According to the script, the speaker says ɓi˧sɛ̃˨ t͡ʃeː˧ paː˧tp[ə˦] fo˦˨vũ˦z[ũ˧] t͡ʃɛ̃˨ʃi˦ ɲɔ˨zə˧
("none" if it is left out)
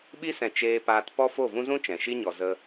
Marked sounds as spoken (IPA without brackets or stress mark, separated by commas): ɔ˦, ũ˦